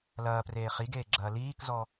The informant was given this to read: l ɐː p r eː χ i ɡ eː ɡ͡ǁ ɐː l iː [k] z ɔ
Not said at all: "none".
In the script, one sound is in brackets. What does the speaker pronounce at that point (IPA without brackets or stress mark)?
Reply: k